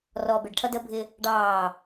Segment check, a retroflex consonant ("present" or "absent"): present